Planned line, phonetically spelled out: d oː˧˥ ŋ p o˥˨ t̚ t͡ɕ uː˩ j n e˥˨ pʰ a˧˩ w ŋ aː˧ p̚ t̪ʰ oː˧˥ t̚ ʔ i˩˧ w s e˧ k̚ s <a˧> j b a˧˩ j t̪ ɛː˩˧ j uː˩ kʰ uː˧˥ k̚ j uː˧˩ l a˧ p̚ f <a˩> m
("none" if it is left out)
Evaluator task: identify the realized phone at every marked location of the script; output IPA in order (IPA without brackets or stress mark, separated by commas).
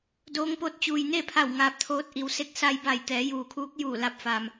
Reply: a˧, a˩